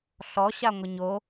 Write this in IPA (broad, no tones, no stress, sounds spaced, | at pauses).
ɬ ɔ ɕ a ŋʷ ɐ ɲ o